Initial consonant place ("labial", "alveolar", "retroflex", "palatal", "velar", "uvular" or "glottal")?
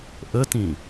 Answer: glottal